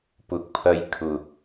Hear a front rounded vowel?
no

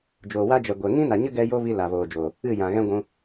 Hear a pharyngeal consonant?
no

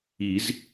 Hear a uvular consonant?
no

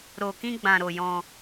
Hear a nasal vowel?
yes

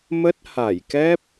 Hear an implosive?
no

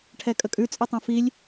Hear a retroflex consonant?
yes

